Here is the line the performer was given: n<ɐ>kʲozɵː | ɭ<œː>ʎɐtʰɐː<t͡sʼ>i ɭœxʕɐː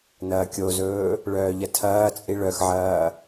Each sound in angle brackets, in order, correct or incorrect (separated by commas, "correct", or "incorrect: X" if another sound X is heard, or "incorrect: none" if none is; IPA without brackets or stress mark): incorrect: ɐː, correct, correct